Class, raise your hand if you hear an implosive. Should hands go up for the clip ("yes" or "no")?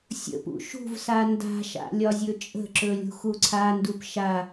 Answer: no